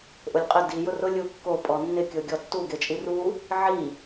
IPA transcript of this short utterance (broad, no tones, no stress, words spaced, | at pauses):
ʔʊlʲqʼɪ di jʊrʊ lʲukːo pʼɔnːɪ kʲoɡʲɔtːu ɡet͡ʃʼiru | ʕi